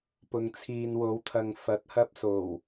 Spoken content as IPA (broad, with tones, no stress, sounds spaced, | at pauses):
p ʊ˨ ŋ t͡sʰ iː˨ n w o˨˧ w t̪ʰ ɐ˨ ŋ f ɐ˨˥ t̚ h ɐ˧ p̚ s o˨˩ w